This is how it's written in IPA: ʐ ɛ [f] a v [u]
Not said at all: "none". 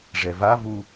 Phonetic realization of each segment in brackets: v, u

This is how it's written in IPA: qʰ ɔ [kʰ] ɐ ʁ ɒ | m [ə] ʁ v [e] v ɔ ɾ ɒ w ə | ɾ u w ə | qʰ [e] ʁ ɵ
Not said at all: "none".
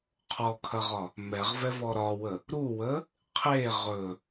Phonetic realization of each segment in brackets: kʰ, ɛ, ɛ, e

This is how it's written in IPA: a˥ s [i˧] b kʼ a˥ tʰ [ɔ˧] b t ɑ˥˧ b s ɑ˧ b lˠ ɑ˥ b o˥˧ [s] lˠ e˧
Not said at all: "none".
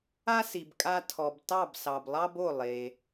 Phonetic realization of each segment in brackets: i˧, ɔ˧, none

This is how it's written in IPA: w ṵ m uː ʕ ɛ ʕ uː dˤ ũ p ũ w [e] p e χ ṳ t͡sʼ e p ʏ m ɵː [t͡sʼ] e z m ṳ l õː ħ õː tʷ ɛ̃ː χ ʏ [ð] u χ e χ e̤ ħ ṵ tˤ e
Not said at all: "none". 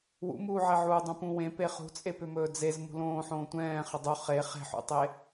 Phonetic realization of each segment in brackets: ẽ, d͡z, dˤ

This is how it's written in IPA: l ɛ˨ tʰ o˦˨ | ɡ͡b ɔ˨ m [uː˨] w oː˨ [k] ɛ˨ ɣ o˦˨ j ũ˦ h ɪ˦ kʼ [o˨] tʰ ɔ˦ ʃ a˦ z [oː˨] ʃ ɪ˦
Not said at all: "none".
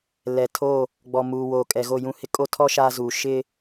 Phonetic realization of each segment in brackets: uː˨, kʼ, o˦, uː˨

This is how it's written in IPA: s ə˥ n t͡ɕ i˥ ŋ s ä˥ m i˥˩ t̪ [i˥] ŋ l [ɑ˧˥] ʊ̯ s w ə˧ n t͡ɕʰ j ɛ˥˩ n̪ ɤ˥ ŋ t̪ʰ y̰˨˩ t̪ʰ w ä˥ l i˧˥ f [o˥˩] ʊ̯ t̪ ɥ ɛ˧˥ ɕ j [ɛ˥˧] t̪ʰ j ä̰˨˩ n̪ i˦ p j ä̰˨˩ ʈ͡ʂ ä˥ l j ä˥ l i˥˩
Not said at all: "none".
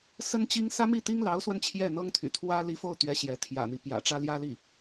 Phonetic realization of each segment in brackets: i˥, ɑ˧˥, o˥˩, ɛ˧˥

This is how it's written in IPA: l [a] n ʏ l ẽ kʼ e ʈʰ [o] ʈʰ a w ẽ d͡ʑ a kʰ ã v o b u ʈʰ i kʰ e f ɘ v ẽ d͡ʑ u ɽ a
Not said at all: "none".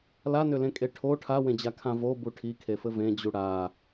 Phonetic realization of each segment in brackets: a, o

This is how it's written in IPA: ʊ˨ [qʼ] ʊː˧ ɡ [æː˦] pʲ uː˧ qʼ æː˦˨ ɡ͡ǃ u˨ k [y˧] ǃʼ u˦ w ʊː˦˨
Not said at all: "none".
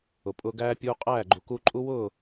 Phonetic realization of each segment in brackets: pʼ, æː˦, u˧

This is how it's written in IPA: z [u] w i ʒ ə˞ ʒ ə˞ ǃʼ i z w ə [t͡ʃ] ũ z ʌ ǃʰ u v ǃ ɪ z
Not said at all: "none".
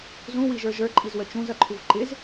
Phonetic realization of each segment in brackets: ũ, t͡ʃ

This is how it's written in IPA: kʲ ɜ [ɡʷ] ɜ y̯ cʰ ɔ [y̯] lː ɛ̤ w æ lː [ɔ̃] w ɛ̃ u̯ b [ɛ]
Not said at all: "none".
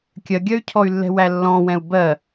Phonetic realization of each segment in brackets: ɡʲ, y̯, ɔ̃, ɜ

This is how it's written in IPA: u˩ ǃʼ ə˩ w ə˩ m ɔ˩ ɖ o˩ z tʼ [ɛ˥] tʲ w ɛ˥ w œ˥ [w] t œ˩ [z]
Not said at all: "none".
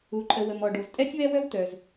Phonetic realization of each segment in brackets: ɛ˥, w, z

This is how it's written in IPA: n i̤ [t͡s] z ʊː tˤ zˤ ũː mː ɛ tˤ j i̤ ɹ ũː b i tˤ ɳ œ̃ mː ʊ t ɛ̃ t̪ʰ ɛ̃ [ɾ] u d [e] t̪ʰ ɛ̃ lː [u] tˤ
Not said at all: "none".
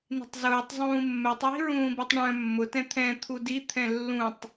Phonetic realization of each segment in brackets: tˤ, t̪ʰ, i, ũ

